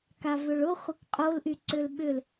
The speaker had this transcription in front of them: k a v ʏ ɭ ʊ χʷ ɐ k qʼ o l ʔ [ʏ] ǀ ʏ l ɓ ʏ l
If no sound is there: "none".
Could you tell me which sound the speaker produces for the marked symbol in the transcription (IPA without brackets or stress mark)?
y